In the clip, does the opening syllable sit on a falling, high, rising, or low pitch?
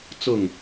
falling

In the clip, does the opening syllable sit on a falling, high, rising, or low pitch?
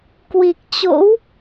low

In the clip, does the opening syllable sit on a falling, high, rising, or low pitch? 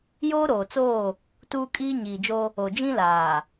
high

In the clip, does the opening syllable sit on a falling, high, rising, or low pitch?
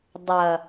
low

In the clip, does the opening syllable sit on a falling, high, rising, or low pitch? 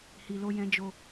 low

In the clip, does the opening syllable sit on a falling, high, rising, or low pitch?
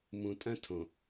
low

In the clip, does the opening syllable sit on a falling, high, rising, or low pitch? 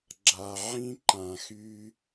low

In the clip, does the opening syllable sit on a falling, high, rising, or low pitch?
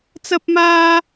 high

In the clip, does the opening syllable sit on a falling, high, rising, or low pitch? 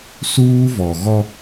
high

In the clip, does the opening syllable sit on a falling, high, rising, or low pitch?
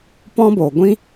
high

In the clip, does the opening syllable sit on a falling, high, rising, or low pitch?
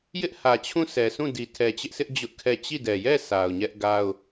high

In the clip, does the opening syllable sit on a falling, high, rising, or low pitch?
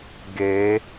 rising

